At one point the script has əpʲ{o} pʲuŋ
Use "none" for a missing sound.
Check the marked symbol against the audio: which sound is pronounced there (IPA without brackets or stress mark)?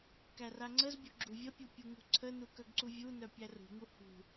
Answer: u